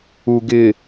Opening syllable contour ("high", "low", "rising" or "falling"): low